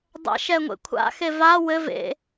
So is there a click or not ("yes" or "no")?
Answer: no